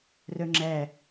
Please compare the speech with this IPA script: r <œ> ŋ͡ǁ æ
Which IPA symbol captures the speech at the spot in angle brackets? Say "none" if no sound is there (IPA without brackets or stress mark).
œ